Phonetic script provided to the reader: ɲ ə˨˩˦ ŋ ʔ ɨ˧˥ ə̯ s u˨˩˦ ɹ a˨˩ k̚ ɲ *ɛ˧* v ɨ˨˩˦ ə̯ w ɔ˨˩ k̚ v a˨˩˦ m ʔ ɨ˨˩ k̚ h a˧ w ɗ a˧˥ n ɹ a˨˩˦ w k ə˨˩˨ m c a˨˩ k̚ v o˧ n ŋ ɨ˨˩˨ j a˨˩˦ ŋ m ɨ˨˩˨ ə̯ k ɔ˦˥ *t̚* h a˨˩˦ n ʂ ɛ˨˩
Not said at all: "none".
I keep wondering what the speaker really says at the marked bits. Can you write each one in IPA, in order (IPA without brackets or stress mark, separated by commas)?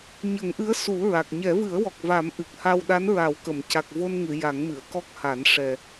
ɛ˨˩˦, k̚